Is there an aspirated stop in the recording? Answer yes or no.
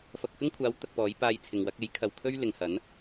yes